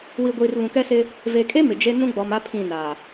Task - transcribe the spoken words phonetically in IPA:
w i˨ ɡʷ iː˨ r β ũ˨ k ɛ˦ s ɪ˦ | v e˨ kʼ e˦ m ɪ˨ d͡ʒ e˦ n ũ˦ ɡ͡b ɔ˨ m a˦ pʰ ĩ˦˨ n a˨

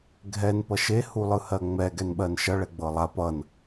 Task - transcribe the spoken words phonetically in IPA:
ɡʱ ɛ n p ʌ ʃ e h u lˠ ɯ h ɜ ŋ͡m ɛ ɡ ɛ n ɓ ɜ n ʃ ʌ ɭ ɛ ɡ͡b ɤ lˠ a p ʌ n

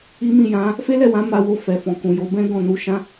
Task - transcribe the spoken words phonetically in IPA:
i˦ m ĩ˦˨ j ã˨˦ | f e˦ l ɛ˦˨ w ã˨˦ m a˧ w o˧ f ɛ˨ f ɔ̃˨ k ũ˨ j o˨˦ b ɛ̃˦ ɡ ɔ̃˦˨ n u˧ ʃ ã˦

